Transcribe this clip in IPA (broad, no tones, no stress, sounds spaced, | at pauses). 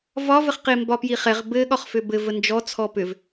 v ɒ v ə χ q e m b ɒ p j i χ ɛ ʁ b ɘ ɠ ɒ χ f ʏ b ɘ v ə n d͡ʒ ɔ t͡sʰ ɔ p ʏ v